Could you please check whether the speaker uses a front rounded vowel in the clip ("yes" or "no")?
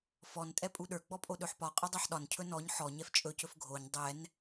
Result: no